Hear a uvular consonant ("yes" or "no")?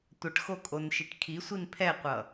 yes